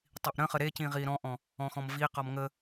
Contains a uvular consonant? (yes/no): yes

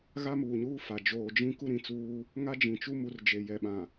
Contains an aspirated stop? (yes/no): no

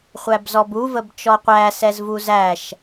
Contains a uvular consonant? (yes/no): yes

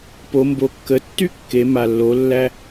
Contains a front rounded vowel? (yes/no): yes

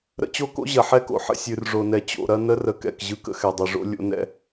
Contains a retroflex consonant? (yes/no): yes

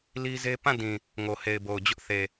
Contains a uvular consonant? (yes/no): no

